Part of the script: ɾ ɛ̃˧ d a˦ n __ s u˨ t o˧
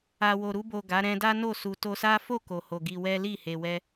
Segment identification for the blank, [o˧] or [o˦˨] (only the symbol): o˦˨